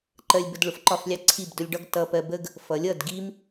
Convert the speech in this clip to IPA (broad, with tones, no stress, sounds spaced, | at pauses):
ǃ ɜ˧ lʲ b ə˧ d ɭ ʊ˨ f ǃ ɒ˦˨ f lʲ ɑ˦ ǀʰ i˦˨ b d ʊ˧ lʲ ɖ ɒ˦ ɡ t ʌ˧ p ɜ˧ b ə˦ ɡ | f ʌ˨˦ lʲ ʌ˦˨ d ɡ i˦ m